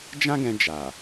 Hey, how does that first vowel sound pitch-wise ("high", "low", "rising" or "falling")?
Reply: high